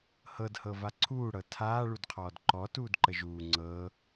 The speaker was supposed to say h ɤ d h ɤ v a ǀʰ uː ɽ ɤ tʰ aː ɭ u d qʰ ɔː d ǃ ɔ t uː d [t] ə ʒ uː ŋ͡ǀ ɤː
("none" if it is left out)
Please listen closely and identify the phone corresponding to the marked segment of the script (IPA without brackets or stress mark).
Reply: ǃ